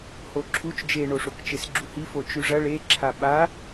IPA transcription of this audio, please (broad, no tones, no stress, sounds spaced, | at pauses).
h o ǁʰ u t͡ʃ d͡ʒ e ɳ o ʂ o k t͡ʃ e s ɡ͡ǁ u h i f o t͡ʃ ʉ ʐ ɐ ɭ e ǁʰ a ɓ a